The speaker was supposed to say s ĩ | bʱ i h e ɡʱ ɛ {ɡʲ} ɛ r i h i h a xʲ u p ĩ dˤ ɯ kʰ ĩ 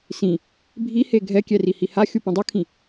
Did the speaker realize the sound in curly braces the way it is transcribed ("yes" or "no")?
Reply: no